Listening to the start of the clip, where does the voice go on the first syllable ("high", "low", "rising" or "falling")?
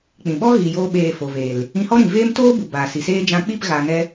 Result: low